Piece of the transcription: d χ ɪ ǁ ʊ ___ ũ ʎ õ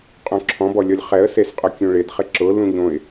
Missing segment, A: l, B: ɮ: A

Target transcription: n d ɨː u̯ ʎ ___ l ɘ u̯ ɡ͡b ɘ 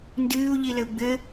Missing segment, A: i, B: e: A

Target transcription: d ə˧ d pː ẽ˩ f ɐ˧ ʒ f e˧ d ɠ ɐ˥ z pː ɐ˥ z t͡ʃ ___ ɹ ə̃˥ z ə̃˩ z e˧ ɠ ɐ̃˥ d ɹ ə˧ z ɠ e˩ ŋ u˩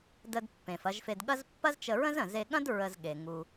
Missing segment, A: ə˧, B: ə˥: A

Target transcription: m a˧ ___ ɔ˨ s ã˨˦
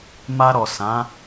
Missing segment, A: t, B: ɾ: B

